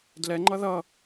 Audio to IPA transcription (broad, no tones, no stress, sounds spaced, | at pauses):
d l ɛ ŋ͡ǃ ʌ ð ʌ